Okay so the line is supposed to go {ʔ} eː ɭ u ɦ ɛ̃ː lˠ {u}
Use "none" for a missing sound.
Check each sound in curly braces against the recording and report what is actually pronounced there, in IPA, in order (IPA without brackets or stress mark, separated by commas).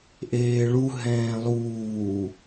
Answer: ʔ, uː